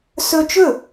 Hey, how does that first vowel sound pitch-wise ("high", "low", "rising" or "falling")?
high